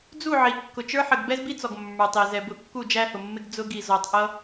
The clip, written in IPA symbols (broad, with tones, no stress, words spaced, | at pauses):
d͡zu˦˨ʕi˨ kːʊ˨t͡ʃə˞˦ħə˨ɡ bɛ˦zbi˦t͡sɔ˨ɡ mːə˞˨tˤi˨ zɛ˨bʊ˨˦ kːu˦˨d͡ʒæ˦hʊ˨mːɪ˦ɡ d͡zʊ˦ɡi˨ zɔ˨tˤʔʌ˦